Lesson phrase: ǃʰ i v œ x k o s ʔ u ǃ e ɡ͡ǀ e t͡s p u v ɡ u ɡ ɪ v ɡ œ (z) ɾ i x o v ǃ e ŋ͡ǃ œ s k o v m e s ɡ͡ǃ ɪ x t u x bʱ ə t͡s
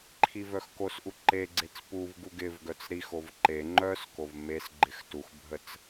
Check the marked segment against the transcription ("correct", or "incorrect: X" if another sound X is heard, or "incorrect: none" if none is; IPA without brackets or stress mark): incorrect: t͡s